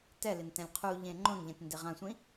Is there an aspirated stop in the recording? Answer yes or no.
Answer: yes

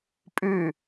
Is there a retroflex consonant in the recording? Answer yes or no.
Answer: no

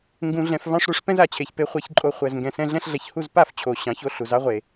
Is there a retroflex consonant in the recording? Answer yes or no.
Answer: yes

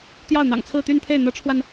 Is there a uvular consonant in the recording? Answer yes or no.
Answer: no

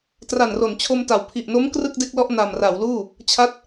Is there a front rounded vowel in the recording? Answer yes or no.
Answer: no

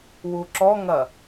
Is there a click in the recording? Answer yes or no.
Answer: yes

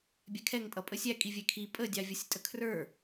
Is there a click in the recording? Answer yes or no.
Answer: no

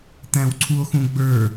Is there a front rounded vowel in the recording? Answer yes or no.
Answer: no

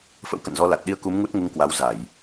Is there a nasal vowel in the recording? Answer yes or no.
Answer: no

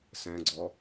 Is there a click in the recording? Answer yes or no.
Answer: yes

